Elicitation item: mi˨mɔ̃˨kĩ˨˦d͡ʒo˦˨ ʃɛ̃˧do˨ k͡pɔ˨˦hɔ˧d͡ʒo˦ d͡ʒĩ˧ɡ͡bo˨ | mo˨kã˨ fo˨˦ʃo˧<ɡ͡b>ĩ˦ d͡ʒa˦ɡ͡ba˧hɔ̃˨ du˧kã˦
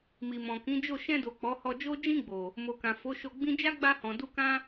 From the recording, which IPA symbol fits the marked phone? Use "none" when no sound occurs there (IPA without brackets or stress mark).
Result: ɡ͡b